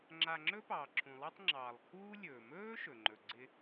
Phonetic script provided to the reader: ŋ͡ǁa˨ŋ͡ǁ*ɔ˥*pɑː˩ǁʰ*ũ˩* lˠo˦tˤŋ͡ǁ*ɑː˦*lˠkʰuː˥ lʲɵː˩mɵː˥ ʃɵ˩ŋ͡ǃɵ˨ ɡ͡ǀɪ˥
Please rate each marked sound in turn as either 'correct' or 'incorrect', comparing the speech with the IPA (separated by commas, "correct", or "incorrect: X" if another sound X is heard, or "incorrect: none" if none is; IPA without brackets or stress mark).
incorrect: ɵ˥, correct, incorrect: ɑː˩